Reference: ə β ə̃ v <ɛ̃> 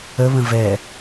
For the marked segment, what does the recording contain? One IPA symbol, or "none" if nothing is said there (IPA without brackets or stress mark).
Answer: ɛ